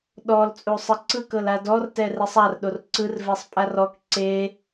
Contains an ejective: yes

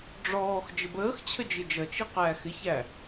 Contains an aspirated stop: yes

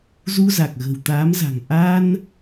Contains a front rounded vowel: no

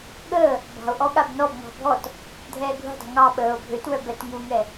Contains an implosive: yes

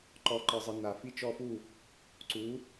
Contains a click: yes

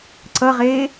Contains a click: yes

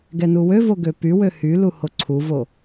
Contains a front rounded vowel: yes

